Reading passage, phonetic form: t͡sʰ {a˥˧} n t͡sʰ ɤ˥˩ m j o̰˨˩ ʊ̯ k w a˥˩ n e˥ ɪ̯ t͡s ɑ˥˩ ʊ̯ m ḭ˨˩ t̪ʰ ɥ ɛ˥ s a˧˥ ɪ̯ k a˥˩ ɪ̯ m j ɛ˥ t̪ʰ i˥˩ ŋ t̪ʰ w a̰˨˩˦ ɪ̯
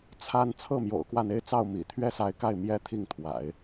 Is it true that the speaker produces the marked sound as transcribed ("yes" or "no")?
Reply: yes